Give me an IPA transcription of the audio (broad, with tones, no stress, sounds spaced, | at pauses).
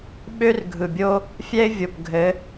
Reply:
ɓ ø˦ r ɡʱ ɯ˨ bʲ o˦ | fʲ ɛ˦ ɪ̯ vʲ o˨ p ɡʱ ɘ˨˦